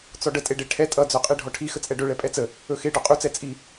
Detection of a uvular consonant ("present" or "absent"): present